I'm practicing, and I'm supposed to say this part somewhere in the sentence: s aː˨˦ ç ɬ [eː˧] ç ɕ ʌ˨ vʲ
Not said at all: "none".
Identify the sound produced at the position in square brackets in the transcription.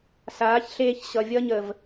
eː˧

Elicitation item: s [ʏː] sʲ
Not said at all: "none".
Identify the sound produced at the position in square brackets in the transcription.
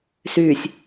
yː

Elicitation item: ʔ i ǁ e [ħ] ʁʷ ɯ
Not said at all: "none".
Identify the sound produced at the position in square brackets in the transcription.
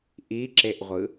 ʔ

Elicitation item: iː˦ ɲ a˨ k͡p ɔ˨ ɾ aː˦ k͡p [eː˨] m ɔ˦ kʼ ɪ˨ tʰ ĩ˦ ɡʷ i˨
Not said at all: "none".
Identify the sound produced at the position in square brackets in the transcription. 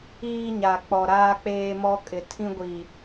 eː˦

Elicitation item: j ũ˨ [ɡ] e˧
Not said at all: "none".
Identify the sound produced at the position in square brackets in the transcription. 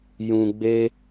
ɡ͡b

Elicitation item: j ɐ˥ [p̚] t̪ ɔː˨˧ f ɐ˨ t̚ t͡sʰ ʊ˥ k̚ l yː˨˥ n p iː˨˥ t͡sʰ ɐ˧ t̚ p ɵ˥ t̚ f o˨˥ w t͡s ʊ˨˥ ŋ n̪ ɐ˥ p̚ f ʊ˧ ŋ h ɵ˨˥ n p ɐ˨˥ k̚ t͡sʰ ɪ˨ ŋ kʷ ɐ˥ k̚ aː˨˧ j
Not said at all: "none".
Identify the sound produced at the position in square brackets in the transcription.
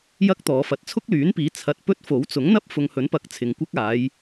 k̚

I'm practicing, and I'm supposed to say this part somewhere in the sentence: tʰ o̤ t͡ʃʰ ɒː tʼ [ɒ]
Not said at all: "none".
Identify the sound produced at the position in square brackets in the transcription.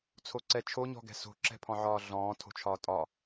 ɒ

